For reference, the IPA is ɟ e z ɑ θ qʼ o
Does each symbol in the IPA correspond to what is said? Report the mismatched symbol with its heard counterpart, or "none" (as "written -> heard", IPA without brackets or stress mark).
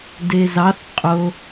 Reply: ɟ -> d